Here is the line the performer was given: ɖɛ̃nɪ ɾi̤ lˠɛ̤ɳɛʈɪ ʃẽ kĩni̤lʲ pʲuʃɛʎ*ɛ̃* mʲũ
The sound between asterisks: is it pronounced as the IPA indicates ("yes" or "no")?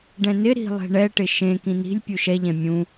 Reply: yes